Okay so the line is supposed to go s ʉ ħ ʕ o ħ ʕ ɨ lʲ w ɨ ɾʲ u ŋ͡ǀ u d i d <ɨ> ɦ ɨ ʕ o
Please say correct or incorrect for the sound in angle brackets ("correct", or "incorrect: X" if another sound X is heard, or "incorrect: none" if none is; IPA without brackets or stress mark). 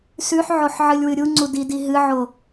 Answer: incorrect: i